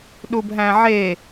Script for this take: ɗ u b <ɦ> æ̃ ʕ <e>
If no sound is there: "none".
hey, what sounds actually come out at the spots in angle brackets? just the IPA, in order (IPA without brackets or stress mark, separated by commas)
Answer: ɦ, e